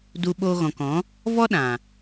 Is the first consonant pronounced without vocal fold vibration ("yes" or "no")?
no